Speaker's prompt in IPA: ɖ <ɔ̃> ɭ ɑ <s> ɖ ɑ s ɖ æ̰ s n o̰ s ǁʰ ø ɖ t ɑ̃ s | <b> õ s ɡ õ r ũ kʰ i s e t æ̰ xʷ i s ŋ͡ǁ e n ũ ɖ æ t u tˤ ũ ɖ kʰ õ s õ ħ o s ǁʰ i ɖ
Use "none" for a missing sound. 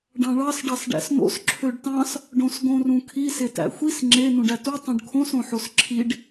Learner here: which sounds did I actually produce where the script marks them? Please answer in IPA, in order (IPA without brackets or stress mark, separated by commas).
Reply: ɑ̃, s, ɖ